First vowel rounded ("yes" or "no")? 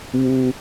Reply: yes